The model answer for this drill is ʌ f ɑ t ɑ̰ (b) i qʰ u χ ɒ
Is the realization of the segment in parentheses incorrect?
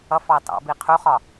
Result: no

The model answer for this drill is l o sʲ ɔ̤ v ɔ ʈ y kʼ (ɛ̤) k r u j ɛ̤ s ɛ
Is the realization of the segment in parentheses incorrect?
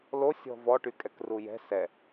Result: yes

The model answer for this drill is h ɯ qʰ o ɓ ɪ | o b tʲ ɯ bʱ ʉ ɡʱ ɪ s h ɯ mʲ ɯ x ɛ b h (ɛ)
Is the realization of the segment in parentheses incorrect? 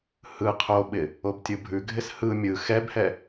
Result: no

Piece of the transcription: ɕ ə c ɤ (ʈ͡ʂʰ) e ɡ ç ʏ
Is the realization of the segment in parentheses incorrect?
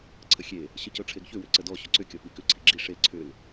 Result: no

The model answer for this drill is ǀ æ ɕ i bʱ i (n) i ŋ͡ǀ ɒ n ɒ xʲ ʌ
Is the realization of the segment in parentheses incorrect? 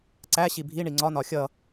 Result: yes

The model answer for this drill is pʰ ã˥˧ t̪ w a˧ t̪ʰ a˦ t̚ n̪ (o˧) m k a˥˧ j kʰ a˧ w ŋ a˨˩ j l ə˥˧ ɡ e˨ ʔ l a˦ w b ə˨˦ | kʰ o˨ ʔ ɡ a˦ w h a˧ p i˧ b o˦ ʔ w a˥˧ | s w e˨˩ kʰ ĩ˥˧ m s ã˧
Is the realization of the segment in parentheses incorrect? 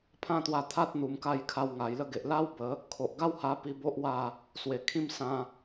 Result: yes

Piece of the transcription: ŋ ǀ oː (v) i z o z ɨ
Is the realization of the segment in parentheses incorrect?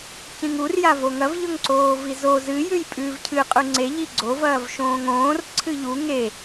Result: no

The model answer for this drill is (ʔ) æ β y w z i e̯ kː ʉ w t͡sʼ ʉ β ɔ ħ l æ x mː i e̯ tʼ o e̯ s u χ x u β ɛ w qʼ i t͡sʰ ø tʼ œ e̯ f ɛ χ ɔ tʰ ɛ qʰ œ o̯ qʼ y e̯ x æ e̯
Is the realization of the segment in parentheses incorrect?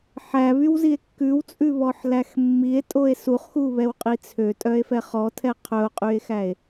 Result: yes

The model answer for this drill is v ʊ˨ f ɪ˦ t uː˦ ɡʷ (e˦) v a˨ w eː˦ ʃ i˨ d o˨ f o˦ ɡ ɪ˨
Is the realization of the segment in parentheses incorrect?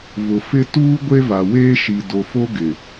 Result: no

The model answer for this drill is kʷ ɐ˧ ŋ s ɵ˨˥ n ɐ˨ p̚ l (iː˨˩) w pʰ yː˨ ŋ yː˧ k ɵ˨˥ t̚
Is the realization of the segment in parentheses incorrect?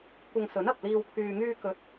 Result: yes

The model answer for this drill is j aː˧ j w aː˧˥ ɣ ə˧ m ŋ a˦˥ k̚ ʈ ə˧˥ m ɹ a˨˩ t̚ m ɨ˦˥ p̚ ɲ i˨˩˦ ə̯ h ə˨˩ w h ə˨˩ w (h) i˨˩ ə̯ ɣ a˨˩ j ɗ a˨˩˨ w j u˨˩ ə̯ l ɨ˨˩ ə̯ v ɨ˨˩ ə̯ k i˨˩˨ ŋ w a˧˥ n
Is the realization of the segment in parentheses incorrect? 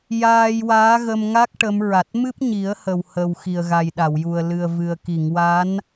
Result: yes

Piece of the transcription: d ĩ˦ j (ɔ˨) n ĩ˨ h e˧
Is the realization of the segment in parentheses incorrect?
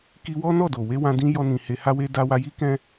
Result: yes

